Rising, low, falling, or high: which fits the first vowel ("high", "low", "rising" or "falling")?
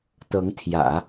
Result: rising